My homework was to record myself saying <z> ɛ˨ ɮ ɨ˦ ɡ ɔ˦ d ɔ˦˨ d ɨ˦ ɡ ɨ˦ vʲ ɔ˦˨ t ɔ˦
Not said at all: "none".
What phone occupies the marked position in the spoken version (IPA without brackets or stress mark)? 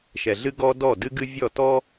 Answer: ʃ